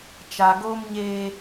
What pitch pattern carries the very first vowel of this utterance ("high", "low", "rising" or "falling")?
low